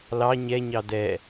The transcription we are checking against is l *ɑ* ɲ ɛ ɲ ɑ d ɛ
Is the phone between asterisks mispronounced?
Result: no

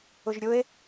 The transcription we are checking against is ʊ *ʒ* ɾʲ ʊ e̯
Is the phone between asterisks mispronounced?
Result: no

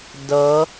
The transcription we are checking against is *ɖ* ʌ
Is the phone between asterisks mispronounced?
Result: yes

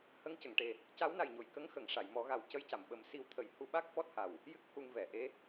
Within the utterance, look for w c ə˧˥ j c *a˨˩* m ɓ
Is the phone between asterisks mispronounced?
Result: yes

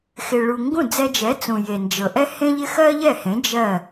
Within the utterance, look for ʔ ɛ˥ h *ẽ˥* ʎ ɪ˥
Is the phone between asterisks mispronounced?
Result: no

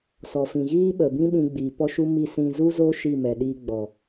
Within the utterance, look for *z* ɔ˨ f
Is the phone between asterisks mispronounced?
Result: yes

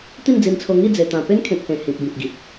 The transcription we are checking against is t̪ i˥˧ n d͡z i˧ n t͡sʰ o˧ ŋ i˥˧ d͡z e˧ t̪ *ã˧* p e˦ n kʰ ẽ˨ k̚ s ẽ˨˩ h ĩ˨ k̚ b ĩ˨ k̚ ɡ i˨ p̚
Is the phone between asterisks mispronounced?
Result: no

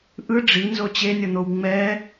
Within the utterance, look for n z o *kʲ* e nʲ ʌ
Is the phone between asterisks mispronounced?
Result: yes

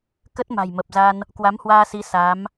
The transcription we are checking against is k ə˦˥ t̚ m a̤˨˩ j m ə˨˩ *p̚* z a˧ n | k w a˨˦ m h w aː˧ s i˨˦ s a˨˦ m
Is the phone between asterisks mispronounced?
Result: no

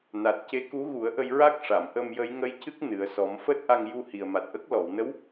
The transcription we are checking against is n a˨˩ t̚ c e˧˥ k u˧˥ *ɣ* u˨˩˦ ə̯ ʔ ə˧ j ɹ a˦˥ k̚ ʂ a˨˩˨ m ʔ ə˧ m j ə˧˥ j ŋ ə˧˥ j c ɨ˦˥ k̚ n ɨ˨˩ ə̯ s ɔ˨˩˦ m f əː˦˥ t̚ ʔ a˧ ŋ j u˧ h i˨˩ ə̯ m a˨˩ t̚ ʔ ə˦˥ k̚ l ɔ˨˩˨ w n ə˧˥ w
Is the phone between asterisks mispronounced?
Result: no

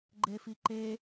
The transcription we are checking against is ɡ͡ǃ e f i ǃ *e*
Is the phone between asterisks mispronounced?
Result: no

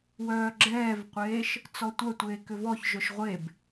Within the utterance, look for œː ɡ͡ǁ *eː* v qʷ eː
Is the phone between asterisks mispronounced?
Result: yes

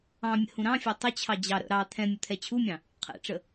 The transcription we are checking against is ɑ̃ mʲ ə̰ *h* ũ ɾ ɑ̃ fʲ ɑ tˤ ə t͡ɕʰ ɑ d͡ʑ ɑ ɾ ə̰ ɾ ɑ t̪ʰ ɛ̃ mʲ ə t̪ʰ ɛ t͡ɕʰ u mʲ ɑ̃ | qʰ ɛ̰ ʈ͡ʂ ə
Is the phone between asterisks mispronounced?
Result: no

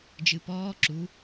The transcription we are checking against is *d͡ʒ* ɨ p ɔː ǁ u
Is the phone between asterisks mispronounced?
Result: no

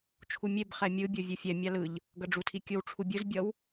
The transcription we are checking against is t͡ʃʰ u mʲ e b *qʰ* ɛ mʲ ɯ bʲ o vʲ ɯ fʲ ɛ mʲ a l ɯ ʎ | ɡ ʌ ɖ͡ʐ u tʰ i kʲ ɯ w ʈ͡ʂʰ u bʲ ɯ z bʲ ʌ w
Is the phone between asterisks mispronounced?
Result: yes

